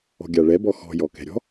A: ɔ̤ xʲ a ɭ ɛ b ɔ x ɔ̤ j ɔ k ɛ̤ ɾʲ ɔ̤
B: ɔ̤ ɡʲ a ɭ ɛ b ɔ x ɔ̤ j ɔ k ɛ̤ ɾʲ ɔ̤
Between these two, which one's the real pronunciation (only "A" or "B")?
B